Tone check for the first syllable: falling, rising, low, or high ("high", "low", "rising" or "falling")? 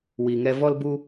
low